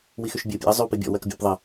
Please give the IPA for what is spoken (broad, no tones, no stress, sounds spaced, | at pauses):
w i x y ʃ bʲ e ʊ̯ pʲ ḛ ə̯ zˤ y w p i bʲ ɔ̰ w ɜ k bʲ ɔ̰ p ðˤ ə